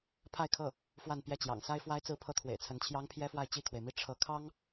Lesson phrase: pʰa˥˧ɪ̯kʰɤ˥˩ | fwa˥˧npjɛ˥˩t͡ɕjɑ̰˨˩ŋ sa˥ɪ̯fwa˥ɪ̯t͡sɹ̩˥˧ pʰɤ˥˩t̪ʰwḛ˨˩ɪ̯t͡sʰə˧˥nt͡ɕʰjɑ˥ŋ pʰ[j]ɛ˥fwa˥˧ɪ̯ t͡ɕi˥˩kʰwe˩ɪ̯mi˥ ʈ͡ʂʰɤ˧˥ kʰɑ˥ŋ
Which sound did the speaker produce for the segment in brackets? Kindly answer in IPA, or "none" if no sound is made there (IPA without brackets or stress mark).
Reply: j